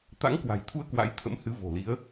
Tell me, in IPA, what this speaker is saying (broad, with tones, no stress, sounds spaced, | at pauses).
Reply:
t̪ a̰˧˥ ŋ k w a̤˨˩ j t̪ʰ u˧ ə̯ k w a̰˧˥ j t̪ʰ ə̰˧˥ m h ɨ˨˦ v o̤˨˩ l i˨˦ ə̯